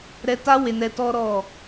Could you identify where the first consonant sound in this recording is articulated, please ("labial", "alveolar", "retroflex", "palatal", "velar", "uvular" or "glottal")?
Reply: alveolar